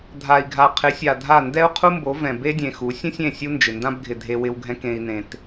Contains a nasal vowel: yes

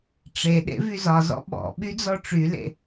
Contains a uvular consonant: no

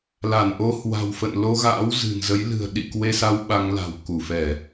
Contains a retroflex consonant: no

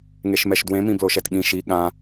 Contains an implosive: yes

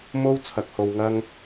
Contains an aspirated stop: yes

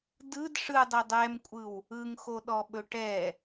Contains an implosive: yes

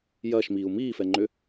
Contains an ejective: no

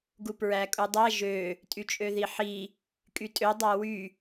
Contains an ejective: yes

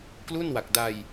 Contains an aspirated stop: no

